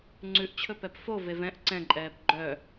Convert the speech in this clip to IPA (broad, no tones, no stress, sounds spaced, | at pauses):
ŋ͡ǀ ʉ ʔ t͡ɕʰ ɵ p ɛ p f o v e v ɛ̃ ʔ ǀ ɛ̃ ǃʼ ɛː p ɡ͡ǃ œ